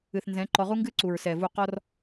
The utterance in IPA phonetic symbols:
ɨ˨ θ n z ɛ̃˨˦ ǃ ɔ˧ ʁ u˦ ŋ ɡ ɨ˦ ǀ u˨ ɹ s ɛ˨ v u˨ q ɔ˧ r

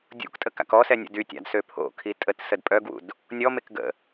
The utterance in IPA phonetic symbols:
dʲ ṵ k tʼ ə k a̰ k ɔ s ɛ nʲ ə̰ d y tʲ a̰ d s ø pʰ o̰ kʰ i tʼ ə t s ə d pʼ œ ɡ w ṵ d | nʲ ɔ m e k ɡ ə̰

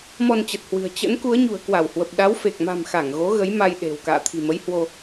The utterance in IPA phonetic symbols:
m ɔ˧ n t͡ɕ ə˨˩ t̚ h w ɨ̤˨˩ ə̯ t͡ɕ ə̰˧˥ n k u˨˦ ə̯ ɲ ṳ˨˩ ə̯ k w a˧˩ w h w ə˨˩ p̚ ɗ a˨˦ w f e˨˩ k̚ m a̤˨˩ m x a˧˩ ŋ ɣ o˨˦ ɣ ə˨˦ j m a˧ j ɗ e̤˨˩ w k a̰ː˧˨ t̪ʰ i̤˨˩ m ə˨˦ j h w o˧

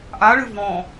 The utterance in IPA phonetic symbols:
ʔ a ɭ ɨ v ɔ̃

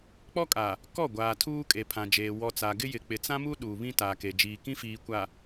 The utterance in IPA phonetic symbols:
k͡p ɔ˦ kʼ a˨ | k ɔ˦˨ ɡʷ aː˨ tʰ uː˦ kʼ e˨ pʰ ã˨ d͡ʒ eː˨ w ɔ˨ t͡s a˨ ɡ ɪ˦ j ɪ˨ k͡p ɪ˨ t͡s ã˦ m u˦ ɗ uː˨ β ĩ˦ t a˨ k e˨ d͡ʒ iː˨ k ĩ˦ f iː˨ kʷ a˨

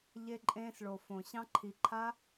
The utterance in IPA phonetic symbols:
ʎ e˧ ǃʼ ẽː˧ s ɭ o˨ f õ˨ ɕ ɑ̃˦ ǃʰ i˧ ǃʰ a˦

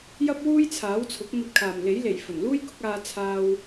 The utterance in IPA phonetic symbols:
j ɐ˥ p̚ w uː˥ j t͡sʰ aː˨˥ w t͡sʰ ʊ˨˥ k̚ n̪ ɐ˧ t̚ kʰ aː˨˩ m l e˨˥ j l e˨˩ j f ɵ˨˩ n l uː˥ j k ʊ˨˥ k̚ aː˧ t͡sʰ aː˧ w

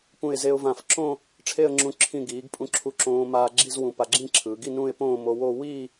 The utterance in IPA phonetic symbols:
p ũ˧˩ ɪ̯ z e˧ ʊ̯ v ã˧˩ f ǁ õ˥˧ | ʈ͡ʂʰ e˥˧ ə̯ ŋ͡ǁ ũ˧ ǁʰ ĩ˧˩ ɡ iː˩˧ ɡ pʼ ũ˧˩ ǁʰ u˧ ǁ õː˧ m aː˧ ɡ͡ǁ i˥˧ z w ũ˧˩ p a˧ ɡ͡ǁ ĩ˥˧ ǁʰ ɯː˩˧ ɡ i˥˧ n ũ˥˧ ɪ̯ p õː˥˧ m o˧ w o˥˧ w iː˥˧

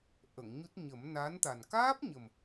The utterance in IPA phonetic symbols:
ʔ ə˨˩˨ ŋ ɲ u˦˥ t̚ ɲ ə˨˩˦ m n a˧˥ n t̪ a˨˩ n k aː˦˥ p̚ ɲ ə˨˩ m

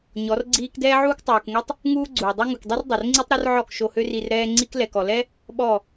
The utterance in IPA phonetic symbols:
ɲ ɔ˨˦ r ɡ͡ǀ iː˦ k d ɛː˦ ʕ uː˦ k tˤ uː˨ k ŋ ɛ˦ tˤ | ŋ uː˦ ɡ͡ǀ uː˨ dˤ ø˦ ŋ u˨ k dˤ i˦ r dˤ o˨ r ŋ͡ǀ i˦ tˤ ɾ o˦ r ʕ ɔ˦˨ k ʃ o˧ h ø˦ r i˧ r ɾ ɛː˦ ŋ͡ǀ i˦ k l ɛ˨ k ɔ˨ l ɛ˦ | ɓ ɔ˦˨

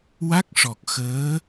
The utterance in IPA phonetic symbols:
w a˦˥ k̚ ʂ ɔ˨˩ k̚ x əː˧˥

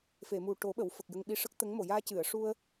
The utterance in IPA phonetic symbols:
f e˨˩˨ m u˨˩ ʈ o˨˩˦ ɓ ə˨˩˨ w f ə˨˩ k̚ j ə˧ ŋ ɓ i˧ ʂ ə˦˥ k̚ t̪ ə˧˥ ŋ m o˨˩˨ j aː˧ c ɨ˨˩˨ ə̯ ʂ u˧ ə̯

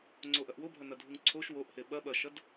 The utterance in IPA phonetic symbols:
ŋ͡ǀ o ʔ ɐ ʔ w o bʱ ɐ n ɐ dʱ u ŋ ǀʰ o ʃ w o ʔ h e ɓ ɐ ɓ ɐ ʃ ɐ d

